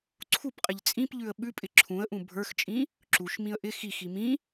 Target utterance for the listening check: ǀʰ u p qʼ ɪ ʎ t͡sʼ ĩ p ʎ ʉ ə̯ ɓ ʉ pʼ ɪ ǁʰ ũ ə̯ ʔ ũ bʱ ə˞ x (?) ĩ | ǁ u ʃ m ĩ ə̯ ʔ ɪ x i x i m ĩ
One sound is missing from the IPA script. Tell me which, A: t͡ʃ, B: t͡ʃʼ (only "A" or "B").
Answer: B